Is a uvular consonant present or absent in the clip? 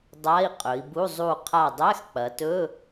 present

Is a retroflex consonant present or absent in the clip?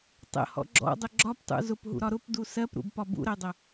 absent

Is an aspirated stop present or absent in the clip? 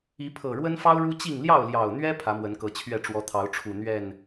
present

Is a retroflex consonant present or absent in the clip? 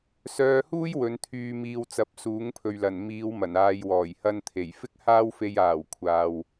absent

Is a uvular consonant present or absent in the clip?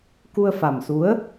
absent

